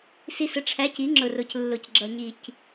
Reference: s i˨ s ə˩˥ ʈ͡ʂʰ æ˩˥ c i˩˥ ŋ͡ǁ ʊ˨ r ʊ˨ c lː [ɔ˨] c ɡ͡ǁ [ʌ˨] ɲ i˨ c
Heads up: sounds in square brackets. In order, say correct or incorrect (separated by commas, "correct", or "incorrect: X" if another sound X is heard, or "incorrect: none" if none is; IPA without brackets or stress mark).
incorrect: ʊ˨, correct